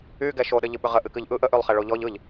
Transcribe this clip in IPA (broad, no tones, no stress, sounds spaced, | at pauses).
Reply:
y ɡ ɛ ʃ o ɗ ə ʎ ɨ ɓ ʏ ʁ ə ʔ ɨ k ɨ ʎ ʔ ɯ ʔ ə ʔ y lˠ χ ɛ ɭ o ʎ ɔ ʎ ɯ ʎ